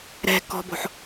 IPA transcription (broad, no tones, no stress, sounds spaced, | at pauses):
ɾ ɛ̤ k ɔ̤ b o̤ ħ